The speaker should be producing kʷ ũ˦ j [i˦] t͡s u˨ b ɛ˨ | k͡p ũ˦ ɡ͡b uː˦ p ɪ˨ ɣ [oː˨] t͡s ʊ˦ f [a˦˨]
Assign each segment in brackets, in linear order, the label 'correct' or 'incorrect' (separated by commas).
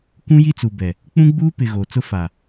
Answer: correct, correct, incorrect